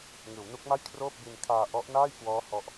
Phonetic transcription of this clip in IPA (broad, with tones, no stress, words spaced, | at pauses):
ŋɯː˩˦wnu˦˥k̚ma˥˩j kʰroː˥˩p̚bi˧n kʰaː˧ ʔɔ˦˥ʔnaː˥˩jkwɔː˦˥ hɔ˦˥ʔ